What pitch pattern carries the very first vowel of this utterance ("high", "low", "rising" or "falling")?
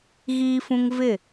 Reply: high